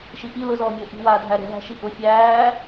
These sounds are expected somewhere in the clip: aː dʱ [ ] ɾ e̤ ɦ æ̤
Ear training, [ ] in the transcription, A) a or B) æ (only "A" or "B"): B